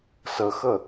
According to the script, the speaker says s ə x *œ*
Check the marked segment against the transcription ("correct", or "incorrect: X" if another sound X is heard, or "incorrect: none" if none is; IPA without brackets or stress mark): incorrect: ə